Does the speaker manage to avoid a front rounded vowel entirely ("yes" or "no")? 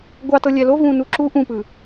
yes